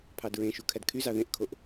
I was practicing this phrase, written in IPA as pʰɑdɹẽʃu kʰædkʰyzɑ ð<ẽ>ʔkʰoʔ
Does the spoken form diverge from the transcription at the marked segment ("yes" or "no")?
no